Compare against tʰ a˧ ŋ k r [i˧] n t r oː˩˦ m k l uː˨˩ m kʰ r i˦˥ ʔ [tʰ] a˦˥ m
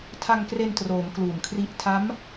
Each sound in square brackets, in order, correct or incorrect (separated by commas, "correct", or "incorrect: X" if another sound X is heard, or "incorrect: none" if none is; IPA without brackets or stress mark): incorrect: e˧, correct